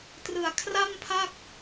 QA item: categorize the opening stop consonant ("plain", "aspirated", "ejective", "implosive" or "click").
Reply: plain